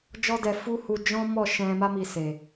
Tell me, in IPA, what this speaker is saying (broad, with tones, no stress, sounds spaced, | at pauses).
d͡ʒ ɔ˦ d ɛ˧ f u˦ h u˧ d͡ʒ ɔ̃˦ m ɔ˦˨ ʃ ɛ̃˧ m a˦ m i˧ s e˨